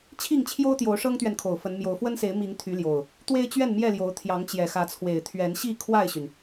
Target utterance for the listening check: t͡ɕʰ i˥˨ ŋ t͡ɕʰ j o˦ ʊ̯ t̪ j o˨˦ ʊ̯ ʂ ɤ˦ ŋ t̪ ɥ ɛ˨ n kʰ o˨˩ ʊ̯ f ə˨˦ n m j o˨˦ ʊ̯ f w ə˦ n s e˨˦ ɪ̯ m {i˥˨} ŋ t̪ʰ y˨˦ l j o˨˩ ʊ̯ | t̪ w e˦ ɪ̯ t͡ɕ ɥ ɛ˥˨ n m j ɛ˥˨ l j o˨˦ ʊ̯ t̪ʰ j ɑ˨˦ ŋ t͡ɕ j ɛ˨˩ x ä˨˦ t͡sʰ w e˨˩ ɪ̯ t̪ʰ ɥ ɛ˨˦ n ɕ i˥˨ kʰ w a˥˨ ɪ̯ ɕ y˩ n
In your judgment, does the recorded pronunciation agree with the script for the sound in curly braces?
no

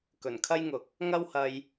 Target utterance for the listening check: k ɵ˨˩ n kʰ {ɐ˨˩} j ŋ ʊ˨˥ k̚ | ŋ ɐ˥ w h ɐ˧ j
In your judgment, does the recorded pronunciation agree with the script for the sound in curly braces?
no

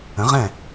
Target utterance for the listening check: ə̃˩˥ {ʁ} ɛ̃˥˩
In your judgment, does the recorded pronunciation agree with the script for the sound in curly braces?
yes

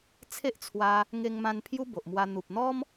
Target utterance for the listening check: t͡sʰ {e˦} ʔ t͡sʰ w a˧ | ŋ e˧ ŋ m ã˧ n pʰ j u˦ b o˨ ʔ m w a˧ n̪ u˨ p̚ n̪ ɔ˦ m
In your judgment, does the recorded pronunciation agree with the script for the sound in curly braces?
yes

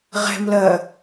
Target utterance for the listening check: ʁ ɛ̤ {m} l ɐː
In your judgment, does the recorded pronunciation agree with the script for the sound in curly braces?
yes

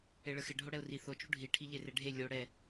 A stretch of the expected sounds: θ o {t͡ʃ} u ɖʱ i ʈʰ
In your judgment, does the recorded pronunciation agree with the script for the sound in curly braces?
yes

